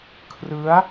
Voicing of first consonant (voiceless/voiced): voiceless